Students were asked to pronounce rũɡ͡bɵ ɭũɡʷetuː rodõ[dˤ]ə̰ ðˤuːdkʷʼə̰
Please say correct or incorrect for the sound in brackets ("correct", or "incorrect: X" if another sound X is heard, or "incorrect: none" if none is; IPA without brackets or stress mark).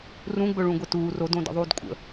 incorrect: d